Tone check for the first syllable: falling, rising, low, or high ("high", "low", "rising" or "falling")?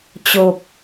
low